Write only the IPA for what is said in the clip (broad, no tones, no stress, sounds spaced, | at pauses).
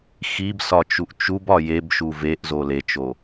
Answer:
x i b s ɒ t͡ʃ u ʔ t͡ʃ u b ɒ j e b ʃ u v e ʔ z o l e t͡ʃ o